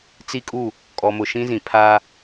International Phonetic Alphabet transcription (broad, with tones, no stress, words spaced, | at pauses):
t͡si˦kʼu˦˨ | kʼɔ˨mʊ˨ ʃĩ˦zĩ˨ pʰa˦